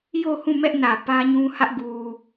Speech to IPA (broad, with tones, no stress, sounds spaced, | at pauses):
j o˦˨ h ũ˦˨ m ɛ˦ ʔ n ä˨ p ä˦ ɲ ũ˦ h ä˦ ʔ ɡ u˨